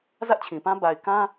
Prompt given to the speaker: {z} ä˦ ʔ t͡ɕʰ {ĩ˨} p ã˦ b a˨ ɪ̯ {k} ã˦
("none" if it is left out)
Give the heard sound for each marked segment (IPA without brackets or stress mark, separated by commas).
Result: z, ĩ˨, k